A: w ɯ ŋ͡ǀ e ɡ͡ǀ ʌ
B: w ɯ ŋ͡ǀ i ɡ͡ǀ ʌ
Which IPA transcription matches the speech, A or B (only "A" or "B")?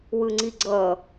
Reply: B